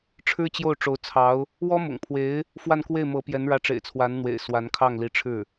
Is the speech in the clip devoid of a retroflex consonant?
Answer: no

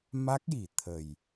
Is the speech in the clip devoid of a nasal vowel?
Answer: yes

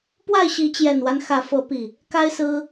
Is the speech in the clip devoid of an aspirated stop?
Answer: yes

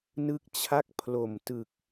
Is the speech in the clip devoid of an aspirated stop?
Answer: no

